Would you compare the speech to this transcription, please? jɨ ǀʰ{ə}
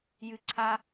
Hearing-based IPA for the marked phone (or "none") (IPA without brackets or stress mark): a